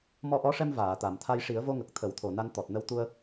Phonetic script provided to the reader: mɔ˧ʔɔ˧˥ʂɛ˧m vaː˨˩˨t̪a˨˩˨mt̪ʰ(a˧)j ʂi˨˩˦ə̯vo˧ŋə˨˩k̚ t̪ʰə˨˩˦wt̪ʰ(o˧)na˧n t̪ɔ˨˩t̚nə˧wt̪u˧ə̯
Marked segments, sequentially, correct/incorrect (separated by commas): correct, incorrect